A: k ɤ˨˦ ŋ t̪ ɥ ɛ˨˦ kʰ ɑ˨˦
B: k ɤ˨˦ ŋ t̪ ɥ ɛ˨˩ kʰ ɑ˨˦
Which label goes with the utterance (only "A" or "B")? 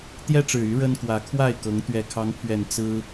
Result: B